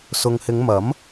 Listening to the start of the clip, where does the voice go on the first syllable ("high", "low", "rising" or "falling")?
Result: low